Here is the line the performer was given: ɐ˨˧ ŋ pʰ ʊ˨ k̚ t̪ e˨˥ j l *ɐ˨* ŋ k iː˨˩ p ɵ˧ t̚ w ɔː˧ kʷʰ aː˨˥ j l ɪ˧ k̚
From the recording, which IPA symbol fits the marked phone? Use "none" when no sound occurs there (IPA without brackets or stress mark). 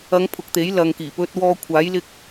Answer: ɐ˨